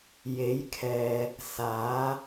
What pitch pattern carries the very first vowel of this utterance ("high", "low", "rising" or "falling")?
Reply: rising